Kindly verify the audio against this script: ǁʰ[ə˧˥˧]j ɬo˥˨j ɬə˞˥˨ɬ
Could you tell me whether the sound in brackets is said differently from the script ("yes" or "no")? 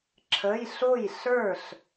no